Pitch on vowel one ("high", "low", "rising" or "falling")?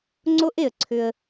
high